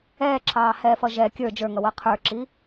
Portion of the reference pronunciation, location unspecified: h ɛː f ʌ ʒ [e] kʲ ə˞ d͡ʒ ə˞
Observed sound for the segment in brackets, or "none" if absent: ɛ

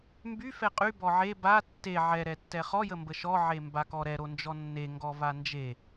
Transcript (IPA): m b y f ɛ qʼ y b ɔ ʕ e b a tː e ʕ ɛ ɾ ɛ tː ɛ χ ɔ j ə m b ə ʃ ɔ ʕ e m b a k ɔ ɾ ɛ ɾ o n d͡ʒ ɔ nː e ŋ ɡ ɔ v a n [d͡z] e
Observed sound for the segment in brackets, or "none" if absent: d͡ʒ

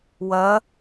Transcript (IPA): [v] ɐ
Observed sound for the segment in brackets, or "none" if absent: w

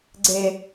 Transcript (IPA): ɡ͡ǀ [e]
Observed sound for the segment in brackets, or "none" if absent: e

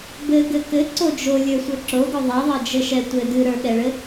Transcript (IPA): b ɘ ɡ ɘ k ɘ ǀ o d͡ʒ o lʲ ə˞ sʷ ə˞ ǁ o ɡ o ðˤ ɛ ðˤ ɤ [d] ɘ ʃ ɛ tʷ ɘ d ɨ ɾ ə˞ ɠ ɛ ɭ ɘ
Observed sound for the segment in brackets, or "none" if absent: d͡ʒ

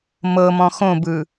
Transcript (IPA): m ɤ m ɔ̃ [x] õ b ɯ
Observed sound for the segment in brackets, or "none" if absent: x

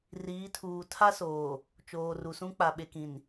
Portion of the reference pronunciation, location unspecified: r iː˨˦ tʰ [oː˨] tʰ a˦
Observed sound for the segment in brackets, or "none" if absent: uː˨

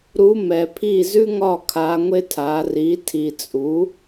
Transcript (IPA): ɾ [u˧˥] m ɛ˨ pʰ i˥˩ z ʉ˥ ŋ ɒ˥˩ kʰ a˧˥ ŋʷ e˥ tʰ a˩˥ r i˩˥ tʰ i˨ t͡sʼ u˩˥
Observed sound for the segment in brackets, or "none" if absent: u˧˥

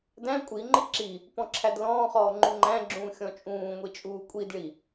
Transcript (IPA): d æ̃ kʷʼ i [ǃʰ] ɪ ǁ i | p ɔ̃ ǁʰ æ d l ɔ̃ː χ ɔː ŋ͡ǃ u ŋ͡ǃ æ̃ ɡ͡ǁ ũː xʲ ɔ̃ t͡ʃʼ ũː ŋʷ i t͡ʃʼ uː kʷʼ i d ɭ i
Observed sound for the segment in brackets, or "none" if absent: ŋ͡ǃ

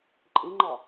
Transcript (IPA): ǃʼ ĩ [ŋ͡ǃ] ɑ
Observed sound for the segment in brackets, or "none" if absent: ŋ͡ǃ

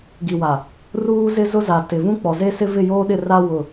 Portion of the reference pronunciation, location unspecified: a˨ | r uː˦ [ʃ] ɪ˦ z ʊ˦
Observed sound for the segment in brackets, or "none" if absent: z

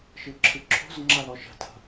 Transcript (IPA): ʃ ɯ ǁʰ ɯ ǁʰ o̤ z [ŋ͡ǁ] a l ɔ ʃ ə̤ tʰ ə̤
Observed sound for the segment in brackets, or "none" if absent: ŋ͡ǁ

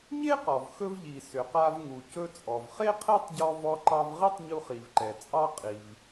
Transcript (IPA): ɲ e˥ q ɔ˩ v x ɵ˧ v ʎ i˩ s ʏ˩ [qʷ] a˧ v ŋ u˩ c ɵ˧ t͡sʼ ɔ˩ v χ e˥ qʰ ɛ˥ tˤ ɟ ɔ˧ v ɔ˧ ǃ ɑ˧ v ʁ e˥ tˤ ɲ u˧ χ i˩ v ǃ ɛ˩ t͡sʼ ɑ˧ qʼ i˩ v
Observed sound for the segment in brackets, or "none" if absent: q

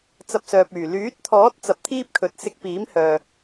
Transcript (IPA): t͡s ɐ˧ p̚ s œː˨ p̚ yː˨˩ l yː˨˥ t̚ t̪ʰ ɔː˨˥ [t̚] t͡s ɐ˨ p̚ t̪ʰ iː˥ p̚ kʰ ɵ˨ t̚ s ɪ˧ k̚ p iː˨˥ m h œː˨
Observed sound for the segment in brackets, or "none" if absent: t̚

